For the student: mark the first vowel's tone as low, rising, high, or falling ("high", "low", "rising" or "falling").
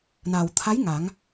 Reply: low